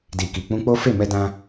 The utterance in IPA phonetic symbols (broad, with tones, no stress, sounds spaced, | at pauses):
d i˨ k i˨ k͡p ũ˧ k͡p o˦ f e˦˨ m ɛ˧ d ã˧